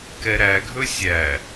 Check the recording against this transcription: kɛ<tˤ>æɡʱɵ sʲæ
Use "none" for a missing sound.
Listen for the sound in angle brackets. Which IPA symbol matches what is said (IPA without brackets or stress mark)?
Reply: ɾ